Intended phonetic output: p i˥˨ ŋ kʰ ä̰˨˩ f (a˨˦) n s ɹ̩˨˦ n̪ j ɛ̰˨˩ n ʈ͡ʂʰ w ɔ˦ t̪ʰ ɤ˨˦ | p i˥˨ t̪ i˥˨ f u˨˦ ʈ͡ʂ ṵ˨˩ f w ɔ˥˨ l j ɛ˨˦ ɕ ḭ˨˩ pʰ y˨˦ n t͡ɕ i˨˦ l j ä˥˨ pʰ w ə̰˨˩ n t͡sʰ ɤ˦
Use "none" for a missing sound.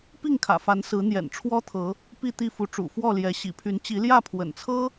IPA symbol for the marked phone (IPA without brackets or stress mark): a˨˦